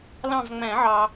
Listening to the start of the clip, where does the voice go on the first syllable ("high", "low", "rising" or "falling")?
falling